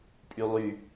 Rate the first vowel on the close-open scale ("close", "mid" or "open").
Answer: close